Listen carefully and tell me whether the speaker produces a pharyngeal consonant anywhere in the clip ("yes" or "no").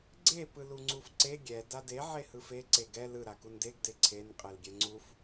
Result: yes